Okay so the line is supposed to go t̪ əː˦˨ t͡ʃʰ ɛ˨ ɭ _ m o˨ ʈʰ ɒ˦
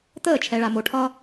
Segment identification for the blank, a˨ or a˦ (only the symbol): a˨